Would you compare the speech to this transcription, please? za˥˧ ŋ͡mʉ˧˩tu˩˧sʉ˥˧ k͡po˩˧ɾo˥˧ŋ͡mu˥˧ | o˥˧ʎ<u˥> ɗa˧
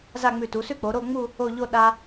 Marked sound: incorrect: o˥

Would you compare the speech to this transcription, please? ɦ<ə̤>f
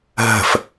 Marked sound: correct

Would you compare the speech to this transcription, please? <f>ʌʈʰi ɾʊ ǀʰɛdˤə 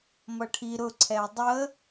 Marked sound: incorrect: m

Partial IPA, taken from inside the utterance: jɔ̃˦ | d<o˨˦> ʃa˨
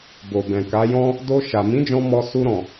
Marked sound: incorrect: o˧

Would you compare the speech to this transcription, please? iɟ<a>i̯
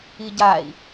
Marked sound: correct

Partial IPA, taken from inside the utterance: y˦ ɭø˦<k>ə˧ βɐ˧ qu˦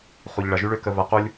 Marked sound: correct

